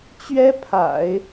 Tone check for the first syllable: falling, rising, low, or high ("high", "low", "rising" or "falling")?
high